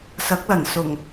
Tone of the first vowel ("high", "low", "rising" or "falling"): rising